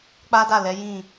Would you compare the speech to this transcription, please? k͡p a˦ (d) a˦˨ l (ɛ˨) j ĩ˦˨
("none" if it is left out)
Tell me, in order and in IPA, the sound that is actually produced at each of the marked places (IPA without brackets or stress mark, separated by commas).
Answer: d, ɛ˨˦